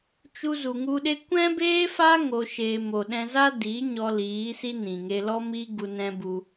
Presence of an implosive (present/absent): present